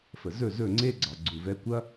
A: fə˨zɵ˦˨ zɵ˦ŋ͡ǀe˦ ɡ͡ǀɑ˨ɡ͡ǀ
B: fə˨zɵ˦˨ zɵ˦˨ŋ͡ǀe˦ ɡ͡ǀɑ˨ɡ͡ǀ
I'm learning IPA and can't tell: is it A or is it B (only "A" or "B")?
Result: B